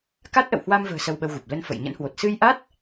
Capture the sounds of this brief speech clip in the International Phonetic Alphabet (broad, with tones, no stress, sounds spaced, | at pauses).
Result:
k a˦˥ t̚ ʔ ə̰˧˨ w h w a˧ m v ə̤ː˨˩ s ə˧ w ɓ ə˧ w ɣ u˨˩ p̚ l ə˧ n f ə̰˧˨ j ɲ ə̰˧˥ n h w o˨˩ t̚ s ɨ˧ j ʔ a˦˥ t̚